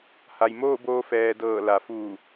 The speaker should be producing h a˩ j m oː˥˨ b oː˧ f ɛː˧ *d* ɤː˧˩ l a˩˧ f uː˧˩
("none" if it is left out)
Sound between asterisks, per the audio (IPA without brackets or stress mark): d